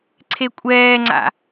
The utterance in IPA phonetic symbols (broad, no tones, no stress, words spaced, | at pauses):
ǀʰekʷʼɛːŋ͡ǀa̰